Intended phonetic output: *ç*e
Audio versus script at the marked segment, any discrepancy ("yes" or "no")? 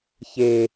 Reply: no